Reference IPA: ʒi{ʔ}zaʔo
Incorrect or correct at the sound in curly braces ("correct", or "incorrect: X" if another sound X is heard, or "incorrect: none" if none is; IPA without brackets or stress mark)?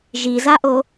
incorrect: none